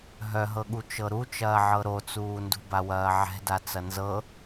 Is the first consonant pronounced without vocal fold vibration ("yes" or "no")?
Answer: no